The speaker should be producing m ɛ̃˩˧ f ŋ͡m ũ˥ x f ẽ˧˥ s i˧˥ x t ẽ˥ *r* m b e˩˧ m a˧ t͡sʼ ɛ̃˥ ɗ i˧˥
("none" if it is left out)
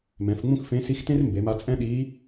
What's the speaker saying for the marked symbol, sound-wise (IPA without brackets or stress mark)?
r